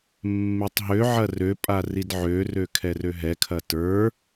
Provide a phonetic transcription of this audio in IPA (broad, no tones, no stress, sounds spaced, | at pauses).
mː e tˤ ɦ ø ʕ ɐ r ø pʼ a r i d ʕ ø r ø kʰ ɛ r ø ɦ ɛ kʰ ɐ t ə˞